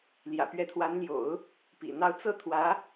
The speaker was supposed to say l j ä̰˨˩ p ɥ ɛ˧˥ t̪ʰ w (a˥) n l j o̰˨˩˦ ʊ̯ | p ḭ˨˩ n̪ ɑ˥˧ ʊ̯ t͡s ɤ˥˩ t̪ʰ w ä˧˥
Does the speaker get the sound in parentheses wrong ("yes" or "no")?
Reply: yes